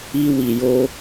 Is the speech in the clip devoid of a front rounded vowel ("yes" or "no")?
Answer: yes